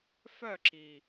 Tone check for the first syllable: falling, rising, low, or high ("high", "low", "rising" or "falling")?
falling